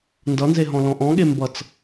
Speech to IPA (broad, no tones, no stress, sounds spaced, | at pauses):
n d ʌ n z e ɦ ɔ̃ l ɔ̃ ʔ ɔ̃ ɠ e m b ʌ t͡s